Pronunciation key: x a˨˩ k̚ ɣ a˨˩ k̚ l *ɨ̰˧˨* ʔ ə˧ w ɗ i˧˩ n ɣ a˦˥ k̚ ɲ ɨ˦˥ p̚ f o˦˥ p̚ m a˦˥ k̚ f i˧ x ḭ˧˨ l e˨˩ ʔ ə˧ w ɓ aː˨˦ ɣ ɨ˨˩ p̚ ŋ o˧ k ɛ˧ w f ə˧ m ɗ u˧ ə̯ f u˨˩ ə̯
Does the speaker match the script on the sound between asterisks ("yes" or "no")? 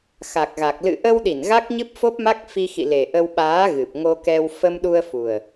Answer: yes